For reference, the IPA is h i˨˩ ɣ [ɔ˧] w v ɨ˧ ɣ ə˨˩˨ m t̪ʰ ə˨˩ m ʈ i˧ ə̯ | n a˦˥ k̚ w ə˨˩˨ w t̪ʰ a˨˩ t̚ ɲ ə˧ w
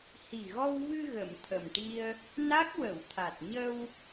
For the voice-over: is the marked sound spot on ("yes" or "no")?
yes